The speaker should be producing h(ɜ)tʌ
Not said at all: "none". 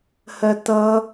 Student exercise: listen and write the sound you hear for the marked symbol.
ɜ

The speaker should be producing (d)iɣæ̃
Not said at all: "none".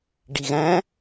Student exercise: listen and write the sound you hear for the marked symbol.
ɖ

